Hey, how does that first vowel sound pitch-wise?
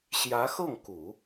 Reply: rising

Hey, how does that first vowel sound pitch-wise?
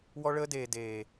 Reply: high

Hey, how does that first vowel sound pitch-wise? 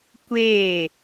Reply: falling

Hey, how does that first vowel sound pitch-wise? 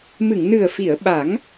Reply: low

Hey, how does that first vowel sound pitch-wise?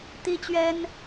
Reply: high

